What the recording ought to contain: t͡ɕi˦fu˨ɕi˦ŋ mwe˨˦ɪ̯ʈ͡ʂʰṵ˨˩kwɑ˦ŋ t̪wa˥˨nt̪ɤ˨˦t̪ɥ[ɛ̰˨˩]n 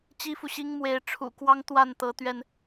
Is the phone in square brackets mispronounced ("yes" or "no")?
yes